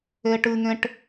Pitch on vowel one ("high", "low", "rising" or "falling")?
high